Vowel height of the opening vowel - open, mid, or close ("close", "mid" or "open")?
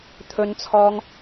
mid